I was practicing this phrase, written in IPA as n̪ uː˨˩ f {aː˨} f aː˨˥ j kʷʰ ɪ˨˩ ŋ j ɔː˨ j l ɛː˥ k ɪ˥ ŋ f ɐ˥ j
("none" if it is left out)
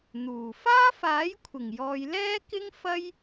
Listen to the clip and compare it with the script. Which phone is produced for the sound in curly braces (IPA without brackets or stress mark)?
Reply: aː˥